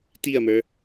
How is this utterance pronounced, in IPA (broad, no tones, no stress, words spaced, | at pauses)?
tiɐ̯mə˞